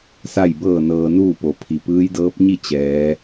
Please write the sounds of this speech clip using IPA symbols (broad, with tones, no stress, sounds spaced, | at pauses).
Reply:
s a˥˨ j b ɤː˥˨ n ɤː˧ n uː˥˨ p o˩˧ pʰ i˩ p ɯː˧˥ j d ɤː˧˥ p̚ ɲ i˥˨ t͡ɕ ɛː˩˧